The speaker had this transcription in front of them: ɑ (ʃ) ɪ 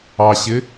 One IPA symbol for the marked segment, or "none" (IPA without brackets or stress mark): ɕ